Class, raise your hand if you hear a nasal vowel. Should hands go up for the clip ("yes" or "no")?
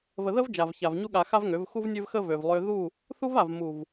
no